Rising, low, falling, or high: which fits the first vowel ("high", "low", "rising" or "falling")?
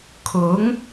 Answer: rising